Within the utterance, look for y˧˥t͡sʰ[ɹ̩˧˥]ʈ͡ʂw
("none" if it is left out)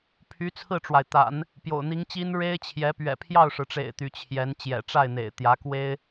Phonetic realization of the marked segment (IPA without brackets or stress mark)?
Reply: ɹ̩˥˩